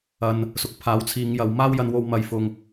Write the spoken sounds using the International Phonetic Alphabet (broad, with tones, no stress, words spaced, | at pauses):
ɐ˨n | sʊ˨˥k̚pʰaː˨˥w t͡sʰiː˨˧ŋjɐ˨˧w maː˥wjɐ˧nwo˧w mɐ˨j fʊ˨ŋ